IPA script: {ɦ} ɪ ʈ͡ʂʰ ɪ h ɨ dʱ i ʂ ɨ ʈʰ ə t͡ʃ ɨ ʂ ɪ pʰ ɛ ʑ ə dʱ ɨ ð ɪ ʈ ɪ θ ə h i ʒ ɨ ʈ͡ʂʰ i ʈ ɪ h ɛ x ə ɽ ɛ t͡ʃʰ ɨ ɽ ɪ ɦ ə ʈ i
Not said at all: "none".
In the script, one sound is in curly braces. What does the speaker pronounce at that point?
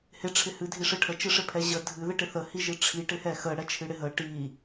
h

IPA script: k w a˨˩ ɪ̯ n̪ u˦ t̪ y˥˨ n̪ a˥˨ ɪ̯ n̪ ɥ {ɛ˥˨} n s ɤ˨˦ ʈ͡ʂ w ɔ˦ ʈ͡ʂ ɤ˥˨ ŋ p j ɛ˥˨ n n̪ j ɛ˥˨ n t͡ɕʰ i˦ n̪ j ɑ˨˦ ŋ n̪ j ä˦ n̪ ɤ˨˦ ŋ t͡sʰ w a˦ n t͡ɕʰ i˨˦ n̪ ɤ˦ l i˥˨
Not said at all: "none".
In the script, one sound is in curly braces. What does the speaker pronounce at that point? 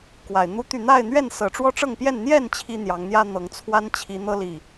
ɛ˥˨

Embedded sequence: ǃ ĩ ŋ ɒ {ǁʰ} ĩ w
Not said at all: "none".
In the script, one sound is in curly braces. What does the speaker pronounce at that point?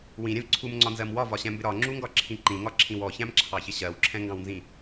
ǁʰ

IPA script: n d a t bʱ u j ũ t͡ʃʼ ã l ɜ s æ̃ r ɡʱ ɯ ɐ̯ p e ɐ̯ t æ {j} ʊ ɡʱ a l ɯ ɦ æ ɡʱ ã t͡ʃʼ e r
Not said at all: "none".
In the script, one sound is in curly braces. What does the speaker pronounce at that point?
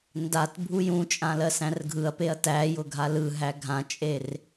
j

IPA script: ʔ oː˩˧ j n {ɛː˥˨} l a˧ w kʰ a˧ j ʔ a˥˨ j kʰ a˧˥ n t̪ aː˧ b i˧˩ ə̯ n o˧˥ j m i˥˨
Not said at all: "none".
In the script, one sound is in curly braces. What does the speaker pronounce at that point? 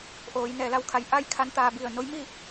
ɛː˩˧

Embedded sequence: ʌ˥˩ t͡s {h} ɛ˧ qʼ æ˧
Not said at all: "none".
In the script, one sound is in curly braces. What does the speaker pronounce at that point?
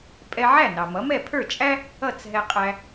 ɦ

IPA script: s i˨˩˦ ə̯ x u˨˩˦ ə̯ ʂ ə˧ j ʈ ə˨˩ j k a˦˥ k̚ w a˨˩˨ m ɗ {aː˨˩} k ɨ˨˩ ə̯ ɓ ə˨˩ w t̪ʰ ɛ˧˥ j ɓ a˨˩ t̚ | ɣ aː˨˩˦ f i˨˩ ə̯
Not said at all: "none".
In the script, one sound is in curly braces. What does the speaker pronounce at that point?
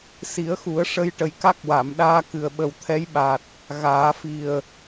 aː˧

